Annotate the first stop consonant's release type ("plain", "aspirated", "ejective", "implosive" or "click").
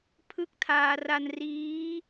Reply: aspirated